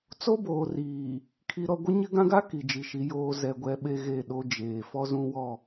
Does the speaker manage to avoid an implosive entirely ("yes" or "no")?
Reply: no